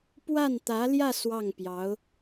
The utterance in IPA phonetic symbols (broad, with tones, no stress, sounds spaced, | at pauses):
p w a˥˩ n t̪ ä˧˥ l j ä˥˧ s w ɑ˥˩ ŋ p j ɑ˧˥ ʊ̯